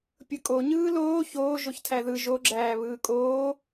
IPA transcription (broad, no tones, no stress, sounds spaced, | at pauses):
pʲ ɯ kʼ o ɲ ɯː l oː ç oː ʒ o ç tʰ æ ð ɯ ʒ o ɡ͡ǁ æː β ɯː kʼ oː